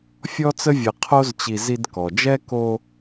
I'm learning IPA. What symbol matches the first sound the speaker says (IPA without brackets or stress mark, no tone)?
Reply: fʲ